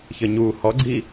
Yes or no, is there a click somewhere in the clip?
yes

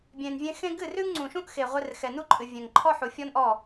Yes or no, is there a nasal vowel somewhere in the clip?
yes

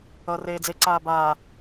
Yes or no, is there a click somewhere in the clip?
yes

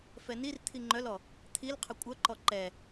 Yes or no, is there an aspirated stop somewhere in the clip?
yes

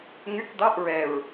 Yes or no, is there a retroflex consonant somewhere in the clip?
no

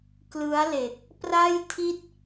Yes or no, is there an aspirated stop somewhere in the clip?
yes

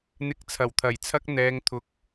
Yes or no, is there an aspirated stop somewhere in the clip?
yes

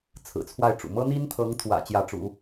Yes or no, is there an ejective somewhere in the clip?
no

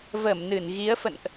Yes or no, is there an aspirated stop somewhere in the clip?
no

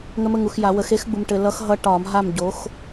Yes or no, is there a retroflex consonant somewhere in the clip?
yes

